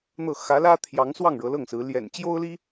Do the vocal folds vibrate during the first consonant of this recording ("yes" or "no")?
yes